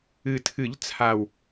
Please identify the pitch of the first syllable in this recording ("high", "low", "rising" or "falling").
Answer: low